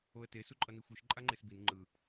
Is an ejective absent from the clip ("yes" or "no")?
no